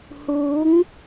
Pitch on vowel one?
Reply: rising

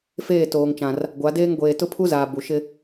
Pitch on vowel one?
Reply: falling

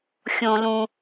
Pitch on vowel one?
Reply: high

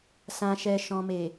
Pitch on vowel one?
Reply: low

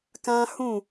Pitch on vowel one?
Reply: high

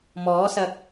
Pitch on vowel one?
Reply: rising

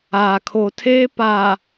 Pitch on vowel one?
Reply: low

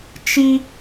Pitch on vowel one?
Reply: high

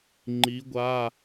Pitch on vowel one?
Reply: rising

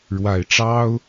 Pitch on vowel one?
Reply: low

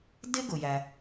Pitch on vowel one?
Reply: high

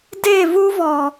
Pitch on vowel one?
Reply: falling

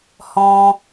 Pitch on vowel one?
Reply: high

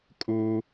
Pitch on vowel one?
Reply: high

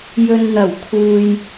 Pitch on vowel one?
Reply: low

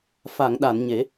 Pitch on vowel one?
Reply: low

